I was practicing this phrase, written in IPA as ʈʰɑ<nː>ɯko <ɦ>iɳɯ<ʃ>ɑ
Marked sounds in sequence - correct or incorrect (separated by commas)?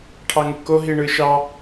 incorrect, correct, correct